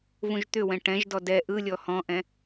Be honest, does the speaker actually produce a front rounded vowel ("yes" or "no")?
yes